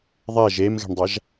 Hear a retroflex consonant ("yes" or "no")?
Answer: yes